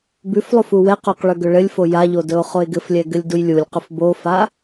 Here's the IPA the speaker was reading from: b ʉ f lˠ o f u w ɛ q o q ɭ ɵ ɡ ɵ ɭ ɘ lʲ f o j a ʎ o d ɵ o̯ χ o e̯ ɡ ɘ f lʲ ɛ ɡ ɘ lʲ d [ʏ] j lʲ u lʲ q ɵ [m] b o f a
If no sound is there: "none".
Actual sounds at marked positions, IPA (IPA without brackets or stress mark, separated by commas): u, f